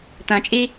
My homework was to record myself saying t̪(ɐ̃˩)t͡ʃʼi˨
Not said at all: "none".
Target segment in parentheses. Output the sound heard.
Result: ɐ̃˩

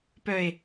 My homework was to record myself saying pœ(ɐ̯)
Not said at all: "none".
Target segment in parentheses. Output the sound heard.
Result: e̯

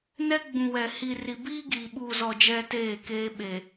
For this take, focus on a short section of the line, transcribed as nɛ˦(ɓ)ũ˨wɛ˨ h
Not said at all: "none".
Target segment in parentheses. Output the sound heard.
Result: ɡ͡b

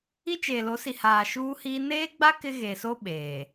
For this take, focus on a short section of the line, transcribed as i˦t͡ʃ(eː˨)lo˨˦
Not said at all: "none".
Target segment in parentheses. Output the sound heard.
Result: eː˨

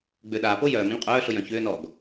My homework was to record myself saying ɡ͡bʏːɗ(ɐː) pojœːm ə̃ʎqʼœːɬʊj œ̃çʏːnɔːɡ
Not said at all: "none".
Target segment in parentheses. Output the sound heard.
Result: aː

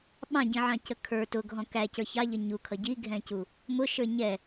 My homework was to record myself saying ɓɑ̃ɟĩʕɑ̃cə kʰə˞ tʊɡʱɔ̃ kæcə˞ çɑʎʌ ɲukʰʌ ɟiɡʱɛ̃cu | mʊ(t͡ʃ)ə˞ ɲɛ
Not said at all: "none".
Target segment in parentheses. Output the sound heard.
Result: ʃ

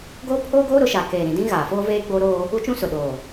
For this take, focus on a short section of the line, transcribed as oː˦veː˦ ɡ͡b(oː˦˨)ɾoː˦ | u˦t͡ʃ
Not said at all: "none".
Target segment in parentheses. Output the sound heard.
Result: oː˦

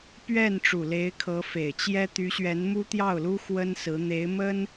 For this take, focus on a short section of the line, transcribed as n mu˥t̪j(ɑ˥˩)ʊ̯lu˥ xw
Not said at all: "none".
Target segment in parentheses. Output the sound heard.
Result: ɑ˥˩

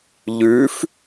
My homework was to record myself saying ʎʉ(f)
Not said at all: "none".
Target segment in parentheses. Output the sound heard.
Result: f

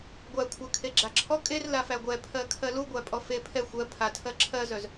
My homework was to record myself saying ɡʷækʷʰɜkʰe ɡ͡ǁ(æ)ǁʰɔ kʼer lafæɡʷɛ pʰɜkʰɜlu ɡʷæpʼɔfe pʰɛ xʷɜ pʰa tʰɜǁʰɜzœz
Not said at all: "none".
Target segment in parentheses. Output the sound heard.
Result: a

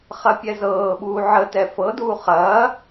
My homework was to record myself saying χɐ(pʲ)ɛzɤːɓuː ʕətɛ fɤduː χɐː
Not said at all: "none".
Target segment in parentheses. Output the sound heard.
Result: pʲ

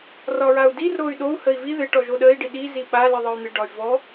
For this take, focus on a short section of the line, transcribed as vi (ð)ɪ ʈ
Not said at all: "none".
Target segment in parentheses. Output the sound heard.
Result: ð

